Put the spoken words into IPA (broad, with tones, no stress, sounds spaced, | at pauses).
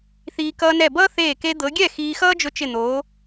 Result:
θ iː˧ k ʌː˧ n ɛ˧˩ b ʌː˥ θ eː˧˩ k e˧ d̪ ɤ˩˧ ɡʲ ɛ˥˩ x iː˧ x ʌː˥ d͡ʒ ʊ˧ t͡ʃ ɪ˧˩ n̪ oː˩˧